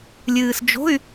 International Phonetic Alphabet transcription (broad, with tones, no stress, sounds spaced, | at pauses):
lʲ ɨː˨ s d͡ʒ o̤˧˥˧ y̯